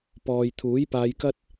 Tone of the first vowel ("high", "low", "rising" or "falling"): low